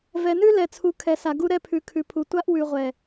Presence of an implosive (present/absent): absent